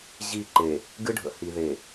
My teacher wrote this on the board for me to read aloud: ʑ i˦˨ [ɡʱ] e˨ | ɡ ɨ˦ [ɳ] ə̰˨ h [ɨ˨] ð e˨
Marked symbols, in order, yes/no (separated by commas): no, no, no